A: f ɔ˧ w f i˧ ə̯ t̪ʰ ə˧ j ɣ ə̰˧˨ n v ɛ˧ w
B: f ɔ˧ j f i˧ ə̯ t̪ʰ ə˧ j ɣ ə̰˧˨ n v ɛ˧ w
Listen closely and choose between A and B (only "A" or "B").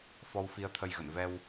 A